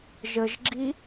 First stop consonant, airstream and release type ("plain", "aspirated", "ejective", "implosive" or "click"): click